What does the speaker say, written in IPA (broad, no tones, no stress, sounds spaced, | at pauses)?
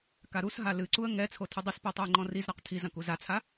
k a ɾ u s ɦ a l ɨ ǀ u ə̯ ŋ ɛ t͡sʰ o tʰ ɨ dˤ i s p ɛ tˤ o ɪ̯ ŋ͡ǃ ɔ̃ r i z ɾ a q tʰ i z ɐ̃ k u z a t͡sʰ a